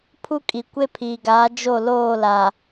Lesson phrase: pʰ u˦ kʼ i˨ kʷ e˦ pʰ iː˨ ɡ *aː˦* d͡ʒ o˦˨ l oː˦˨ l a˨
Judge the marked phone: incorrect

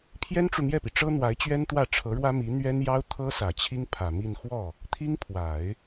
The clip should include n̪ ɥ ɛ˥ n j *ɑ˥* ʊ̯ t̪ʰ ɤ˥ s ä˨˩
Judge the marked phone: correct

